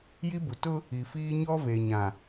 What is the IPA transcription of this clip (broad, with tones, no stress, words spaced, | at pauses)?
ji˦bu˨ tʊ˦ | i˨fiː˦ ɲɔ˦ve˨ɲã˨